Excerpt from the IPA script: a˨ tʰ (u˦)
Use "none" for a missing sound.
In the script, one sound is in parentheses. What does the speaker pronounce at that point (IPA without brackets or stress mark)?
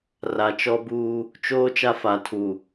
u˨